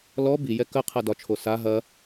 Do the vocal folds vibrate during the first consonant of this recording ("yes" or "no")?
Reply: yes